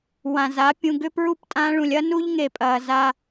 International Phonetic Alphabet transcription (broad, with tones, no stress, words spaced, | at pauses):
wã˨ za˨˦ pʲũ˨ɡʏ˧pɹu˧p tʼã˧ɭũ˨lʲɐ˦ nu˦ʎŋe˨ pʼɐː˨za˧